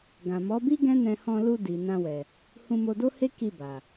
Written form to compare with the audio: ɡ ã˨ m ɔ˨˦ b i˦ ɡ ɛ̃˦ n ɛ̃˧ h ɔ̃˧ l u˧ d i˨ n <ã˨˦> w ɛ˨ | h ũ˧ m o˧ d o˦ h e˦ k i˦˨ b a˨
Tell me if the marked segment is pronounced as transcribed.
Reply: no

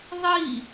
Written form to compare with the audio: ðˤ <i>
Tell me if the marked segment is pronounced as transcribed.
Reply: yes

